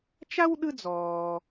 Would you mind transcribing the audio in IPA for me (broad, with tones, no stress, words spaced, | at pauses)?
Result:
t͡ʃa˥wɗɯ˦d͡zɔː˨